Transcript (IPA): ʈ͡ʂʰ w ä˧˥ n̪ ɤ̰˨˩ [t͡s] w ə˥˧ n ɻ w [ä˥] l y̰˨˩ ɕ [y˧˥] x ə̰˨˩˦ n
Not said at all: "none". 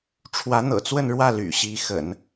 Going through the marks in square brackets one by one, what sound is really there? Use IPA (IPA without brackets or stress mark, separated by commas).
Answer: t͡s, ä˥˩, i˧˥